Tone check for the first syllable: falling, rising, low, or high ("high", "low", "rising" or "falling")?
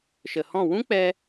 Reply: low